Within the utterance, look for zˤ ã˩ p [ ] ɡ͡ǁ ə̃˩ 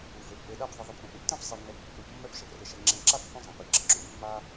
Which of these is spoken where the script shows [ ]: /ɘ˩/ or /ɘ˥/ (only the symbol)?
ɘ˩